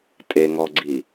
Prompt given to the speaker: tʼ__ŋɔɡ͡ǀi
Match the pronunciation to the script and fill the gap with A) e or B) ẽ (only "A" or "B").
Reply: A